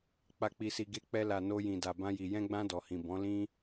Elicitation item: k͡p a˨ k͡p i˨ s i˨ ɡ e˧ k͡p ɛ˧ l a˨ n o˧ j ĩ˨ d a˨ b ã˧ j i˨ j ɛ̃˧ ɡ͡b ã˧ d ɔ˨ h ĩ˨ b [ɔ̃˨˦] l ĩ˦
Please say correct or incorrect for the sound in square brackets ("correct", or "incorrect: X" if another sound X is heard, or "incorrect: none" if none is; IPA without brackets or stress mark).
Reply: correct